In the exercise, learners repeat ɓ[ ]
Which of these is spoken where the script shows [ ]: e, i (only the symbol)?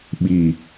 i